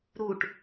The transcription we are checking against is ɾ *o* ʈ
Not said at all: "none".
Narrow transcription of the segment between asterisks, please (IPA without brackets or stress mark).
u